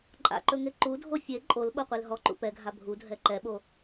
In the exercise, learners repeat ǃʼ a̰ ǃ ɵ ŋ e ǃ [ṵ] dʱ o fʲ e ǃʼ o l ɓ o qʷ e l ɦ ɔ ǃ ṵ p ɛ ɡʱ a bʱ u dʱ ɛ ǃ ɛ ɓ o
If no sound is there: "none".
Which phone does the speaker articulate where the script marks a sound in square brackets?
u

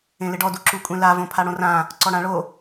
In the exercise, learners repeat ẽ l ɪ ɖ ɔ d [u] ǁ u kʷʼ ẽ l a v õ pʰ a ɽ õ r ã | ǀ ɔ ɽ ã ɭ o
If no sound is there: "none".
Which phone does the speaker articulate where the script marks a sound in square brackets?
u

